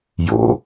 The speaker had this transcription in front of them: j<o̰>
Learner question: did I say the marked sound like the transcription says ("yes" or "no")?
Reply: yes